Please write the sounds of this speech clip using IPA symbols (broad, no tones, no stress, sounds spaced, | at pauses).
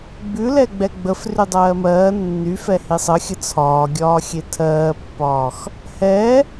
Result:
ɡ͡b ʉ l ɛ ɡ͡b ɛ ɡ͡b ə f r y dˤ ɜː m ɜː nː y f ɛ h i sˤ ə xʲ ə t͡sʰ ɒː ɡʲ ɒː xʲ e tʰ ɜː pː ɒː x | h ɛ